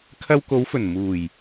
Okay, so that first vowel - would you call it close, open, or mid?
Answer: open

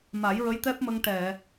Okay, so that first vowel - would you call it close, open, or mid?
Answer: open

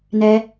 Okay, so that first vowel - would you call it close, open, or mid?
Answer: mid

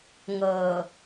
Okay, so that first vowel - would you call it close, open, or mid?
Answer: mid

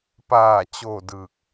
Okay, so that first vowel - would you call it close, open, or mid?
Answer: open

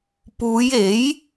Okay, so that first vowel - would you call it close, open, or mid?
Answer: close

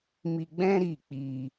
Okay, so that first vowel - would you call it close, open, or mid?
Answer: close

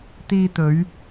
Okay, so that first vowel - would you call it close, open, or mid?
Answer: close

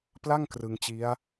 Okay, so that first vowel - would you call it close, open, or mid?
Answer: open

